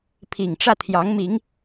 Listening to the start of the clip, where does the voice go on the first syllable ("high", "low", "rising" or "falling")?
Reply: low